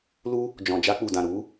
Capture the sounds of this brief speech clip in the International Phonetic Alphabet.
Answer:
l u˦ | d͡ʒ ɔ̃˨ d͡ʒ a˧ k͡p u˨ d ã˨ ɾ u˨˦

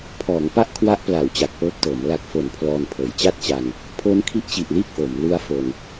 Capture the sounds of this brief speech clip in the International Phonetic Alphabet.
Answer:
pʰ ɔː˩˦ ŋ p a˥˩ ʔ kʰ w a˦˥ ʔ p l a˩˦ w t͡ɕ a˨˩ k̚ p ɤː˦˥ p̚ t ɤː˩˦ m l a˨˩ k̚ f o˩˦ n pʰ l ɔː˧ n pʰ ɤː˩˦ j t͡ɕ a˥˩ t̚ t͡ɕ a˧ n | pʰ o˦˥ n kʰ i˦˥ ʔ t͡ɕ i˨˩ ʔ l iː˥˩ k̚ ʔ o˩˦ m l u˦˥ a̯ f o˧ n

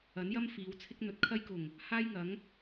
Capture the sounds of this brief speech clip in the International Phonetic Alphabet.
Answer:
ɐ˨˥ n j ɐ˥ m f iː˨˧ w t͡sʰ ɪ˥ k̚ n̪ ɵ˨ t̚ kʰ ɐ˥ j k ʊ˨˩ ŋ | h aː˥ j ŋ ɐ˨˥ ŋ

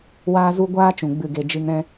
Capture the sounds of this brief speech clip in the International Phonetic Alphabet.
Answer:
w aː˦ z u˦ ɡʷ aː˦ t͡ʃ ũ˨ ɡ͡b ɨ˦˨ ɡ e˧ d͡ʒ ɨ˧ ŋ ɾ ɛ̃˦

